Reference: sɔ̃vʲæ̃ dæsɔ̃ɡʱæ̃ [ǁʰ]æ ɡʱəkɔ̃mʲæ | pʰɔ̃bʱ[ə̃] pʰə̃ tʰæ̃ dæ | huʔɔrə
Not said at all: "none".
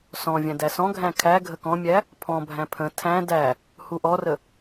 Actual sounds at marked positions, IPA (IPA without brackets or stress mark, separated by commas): kʰ, æ̃